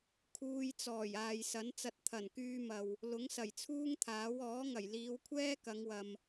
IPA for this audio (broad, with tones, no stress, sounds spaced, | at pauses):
kʰ uː˧ j t͡s ɔː˨˩ j aː˨ j s ɐ˨˥ n t͡s ɐ˧ t̚ t̪ʰ ɐ˨˩ n k yː˧ m ɐ˨ w | l ʊ˨˥ ŋ s ɐ˨˩ j t͡sʰ uː˥ ŋ t̪ʰ aː˨˥ w ɔː˨˥ ŋ ɐ˨˩ j l iː˨˧ w kʷʰ ɛː˥ k ɐ˨˧ ŋ w ɐ˨ m